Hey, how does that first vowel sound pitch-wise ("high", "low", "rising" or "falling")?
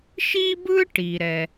high